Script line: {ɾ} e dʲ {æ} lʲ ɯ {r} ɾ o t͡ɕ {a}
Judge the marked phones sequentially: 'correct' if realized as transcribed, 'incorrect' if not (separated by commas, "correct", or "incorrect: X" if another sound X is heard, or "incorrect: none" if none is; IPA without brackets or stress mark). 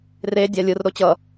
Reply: incorrect: r, incorrect: a, correct, incorrect: ʌ